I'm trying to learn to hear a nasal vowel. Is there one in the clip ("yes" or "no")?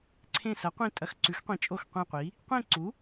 yes